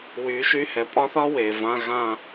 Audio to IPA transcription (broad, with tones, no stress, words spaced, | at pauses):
wyː˩˥ʃy˧˥˧ hɛ˩˥pʼɒ˥θɒ˥ weː˩vã˧˥˧ ɣã˦˨